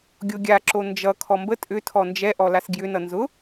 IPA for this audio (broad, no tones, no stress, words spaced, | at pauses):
ɡʲoɡʲa ǁond͡ʒʌ kʰɔmbə tʼʏ tʰɔnd͡ʒɛʔɔ lasɡjʏnʌ nzʊ